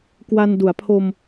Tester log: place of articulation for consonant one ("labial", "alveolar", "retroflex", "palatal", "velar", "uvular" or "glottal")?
velar